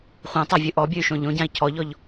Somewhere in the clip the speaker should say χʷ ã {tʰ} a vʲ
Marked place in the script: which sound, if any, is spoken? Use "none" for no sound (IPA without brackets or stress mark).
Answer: tˤ